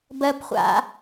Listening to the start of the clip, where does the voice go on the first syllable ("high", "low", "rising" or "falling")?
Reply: high